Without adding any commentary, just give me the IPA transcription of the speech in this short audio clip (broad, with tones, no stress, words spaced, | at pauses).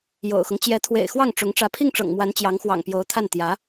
jo̰˨˩ʊ̯xʊ˦ŋ t͡ɕjɛ˧˥t̪ʰwḛ˨˩ɪ̯ xwɑ˥˩ŋʈ͡ʂʊ˧˥ŋ ʈ͡ʂä˧˥pʰi˥˩ŋʈ͡ʂɤ̰˨˩ŋmwa˧˥n t͡ɕjɑ˧˥ŋxwɑ̰˨˩ŋ pjo˧˥ʊ̯t̪ʰa˥˩n t̪jä˧˥